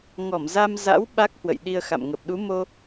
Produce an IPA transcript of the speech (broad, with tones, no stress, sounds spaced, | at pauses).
ŋ ɔ˧˩ m z a˧ m z a̰˧˥ w ɓ a˦˥ k̚ h w ə̰˧˨ j ɗ i˧ ə̯ x a̰˧˨ m ŋ ə˨˩ p̚ ɗ u˨˦ m o˧